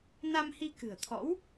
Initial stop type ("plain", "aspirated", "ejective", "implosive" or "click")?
plain